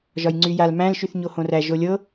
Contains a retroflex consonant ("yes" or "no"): no